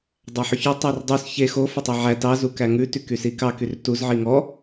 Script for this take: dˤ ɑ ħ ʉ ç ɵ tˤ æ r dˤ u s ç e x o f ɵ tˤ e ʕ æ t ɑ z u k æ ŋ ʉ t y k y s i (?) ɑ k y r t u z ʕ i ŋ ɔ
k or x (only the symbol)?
k